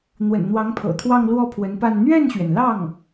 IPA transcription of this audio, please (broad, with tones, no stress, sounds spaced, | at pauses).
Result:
n̪ w ə̰˨˩ n n̪ w ɑ˧˥ ŋ pʰ ɤ̰˨˩ t̪ʰ w ɑ˥˧ ŋ l w ɔ˥˩ pʰ w ə˧˥ n p a˥˧ n n̪ ɥ ɛ˥˩ n ɕ ɥ ɛ˩ n l ɑ˥˩ ŋ